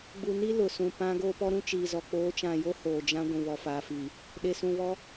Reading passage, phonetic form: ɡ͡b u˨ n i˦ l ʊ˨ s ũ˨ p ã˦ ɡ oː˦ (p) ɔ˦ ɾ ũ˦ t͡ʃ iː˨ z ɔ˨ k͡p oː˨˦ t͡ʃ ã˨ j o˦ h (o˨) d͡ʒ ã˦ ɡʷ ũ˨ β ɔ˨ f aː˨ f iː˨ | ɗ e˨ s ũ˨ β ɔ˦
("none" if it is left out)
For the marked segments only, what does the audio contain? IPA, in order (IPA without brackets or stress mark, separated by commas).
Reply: p, oː˨